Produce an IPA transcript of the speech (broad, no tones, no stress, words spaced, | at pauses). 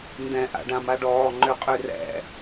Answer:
ndɛ̃ ʔa̰ɖãmaɖɔː ŋ͡ǃʏqʼy rɛ̰